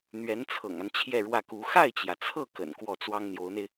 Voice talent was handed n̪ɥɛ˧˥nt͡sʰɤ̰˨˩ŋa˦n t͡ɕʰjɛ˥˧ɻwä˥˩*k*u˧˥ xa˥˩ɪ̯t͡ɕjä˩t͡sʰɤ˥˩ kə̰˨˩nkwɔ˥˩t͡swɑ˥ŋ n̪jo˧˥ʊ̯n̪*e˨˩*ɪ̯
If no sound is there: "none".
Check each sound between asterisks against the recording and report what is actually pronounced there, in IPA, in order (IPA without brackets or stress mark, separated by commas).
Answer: k, e˧